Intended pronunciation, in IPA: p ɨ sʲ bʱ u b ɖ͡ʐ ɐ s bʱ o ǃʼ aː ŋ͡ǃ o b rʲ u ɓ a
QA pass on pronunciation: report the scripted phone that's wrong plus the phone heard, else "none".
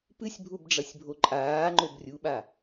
s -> sʲ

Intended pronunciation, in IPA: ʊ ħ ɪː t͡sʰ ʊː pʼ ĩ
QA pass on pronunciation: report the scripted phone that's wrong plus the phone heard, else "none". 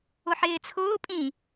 none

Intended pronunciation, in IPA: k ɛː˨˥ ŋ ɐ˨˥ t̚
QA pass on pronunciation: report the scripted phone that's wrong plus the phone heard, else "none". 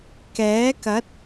ŋ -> k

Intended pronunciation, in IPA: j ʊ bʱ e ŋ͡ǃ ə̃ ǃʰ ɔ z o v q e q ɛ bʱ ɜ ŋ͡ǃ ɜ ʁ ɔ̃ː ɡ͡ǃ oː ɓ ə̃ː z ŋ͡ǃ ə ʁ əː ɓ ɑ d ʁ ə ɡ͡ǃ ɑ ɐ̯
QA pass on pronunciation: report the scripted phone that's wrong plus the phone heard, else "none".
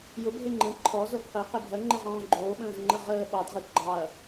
none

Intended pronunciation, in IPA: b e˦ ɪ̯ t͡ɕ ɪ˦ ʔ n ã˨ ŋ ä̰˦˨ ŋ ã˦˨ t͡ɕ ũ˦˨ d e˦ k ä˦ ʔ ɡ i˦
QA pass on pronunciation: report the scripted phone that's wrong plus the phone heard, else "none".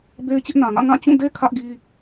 k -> kʰ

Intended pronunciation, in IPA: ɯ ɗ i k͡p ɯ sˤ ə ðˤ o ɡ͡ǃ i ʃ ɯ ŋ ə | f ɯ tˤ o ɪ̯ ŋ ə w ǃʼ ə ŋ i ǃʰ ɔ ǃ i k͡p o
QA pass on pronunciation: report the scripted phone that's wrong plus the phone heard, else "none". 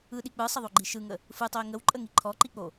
none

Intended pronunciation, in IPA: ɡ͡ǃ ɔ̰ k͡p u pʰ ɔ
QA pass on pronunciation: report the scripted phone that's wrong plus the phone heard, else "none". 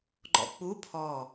none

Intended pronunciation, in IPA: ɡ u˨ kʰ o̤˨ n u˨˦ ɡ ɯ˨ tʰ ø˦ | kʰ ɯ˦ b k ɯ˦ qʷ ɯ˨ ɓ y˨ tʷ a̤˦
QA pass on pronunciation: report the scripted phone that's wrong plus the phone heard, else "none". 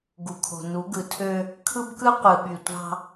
a̤˦ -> ɑ̤˦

